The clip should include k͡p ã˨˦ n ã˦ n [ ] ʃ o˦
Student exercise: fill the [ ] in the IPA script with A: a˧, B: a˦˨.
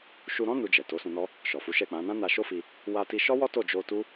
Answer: A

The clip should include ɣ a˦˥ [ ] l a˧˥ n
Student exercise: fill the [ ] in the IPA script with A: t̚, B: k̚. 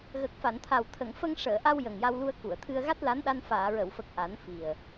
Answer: A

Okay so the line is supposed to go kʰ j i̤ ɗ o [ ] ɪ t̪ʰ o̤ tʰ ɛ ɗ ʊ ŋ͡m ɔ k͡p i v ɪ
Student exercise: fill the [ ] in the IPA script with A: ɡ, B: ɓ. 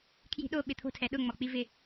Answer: B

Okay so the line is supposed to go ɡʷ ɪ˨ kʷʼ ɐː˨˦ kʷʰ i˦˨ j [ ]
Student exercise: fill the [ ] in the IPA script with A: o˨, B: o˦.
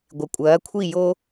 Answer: B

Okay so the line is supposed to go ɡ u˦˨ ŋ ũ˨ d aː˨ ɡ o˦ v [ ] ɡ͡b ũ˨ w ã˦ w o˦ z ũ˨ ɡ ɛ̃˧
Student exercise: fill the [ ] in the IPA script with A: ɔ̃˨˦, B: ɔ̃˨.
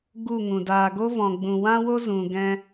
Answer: B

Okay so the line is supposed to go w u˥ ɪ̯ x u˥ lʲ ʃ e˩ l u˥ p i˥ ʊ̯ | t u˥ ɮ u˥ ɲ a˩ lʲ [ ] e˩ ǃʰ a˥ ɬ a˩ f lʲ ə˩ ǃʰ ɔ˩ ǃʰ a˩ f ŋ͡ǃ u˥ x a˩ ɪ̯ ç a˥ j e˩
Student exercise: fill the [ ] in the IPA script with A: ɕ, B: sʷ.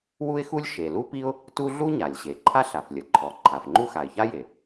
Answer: A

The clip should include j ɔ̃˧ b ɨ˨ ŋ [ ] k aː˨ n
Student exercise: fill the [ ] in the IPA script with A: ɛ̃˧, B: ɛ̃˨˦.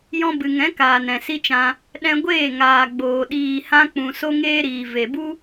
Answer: B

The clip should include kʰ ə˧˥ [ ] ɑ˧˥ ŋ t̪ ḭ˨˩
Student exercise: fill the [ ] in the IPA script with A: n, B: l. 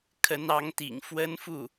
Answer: A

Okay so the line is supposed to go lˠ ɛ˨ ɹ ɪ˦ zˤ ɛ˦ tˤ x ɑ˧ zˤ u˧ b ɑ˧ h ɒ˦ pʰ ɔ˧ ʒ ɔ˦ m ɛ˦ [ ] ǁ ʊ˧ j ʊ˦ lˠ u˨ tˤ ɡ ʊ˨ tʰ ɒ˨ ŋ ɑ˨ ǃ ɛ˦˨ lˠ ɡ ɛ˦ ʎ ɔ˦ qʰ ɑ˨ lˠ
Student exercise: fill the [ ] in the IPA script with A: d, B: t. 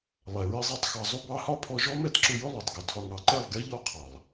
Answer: B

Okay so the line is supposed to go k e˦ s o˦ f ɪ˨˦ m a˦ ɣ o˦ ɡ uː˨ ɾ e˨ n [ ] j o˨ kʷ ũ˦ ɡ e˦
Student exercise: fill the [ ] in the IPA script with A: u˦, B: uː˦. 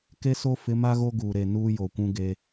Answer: B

